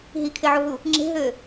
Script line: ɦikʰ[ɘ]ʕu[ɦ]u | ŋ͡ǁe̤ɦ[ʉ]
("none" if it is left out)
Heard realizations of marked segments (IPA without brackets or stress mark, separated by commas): e, ɦ, ø